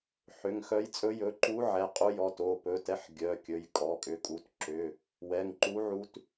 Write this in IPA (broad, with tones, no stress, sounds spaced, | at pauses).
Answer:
ħ ʏ˩˧˩ ŋ x œ˧˥ j t͡sʼ ɵ˧˥ j ɵ˩˧˩ ǃ u˧˥ ʕ ɛ˩˧˩ qʼ u˧˥ j ɔ˩˧˩ t o˩˧˩ p ɵ˩˧˩ t ɛ˧˥ ħ ɡʲ œ˩˧˩ kʲ ɵ˩˧˩ j kʼ ɔ˩˧˩ kʼ ʏ˩˧˩ kʼ u˩˧˩ t ǁ ʏ˩˧˩ | w ɛ˩˧˩ ŋ ǃ u˧˥ ʕ u˧˥ t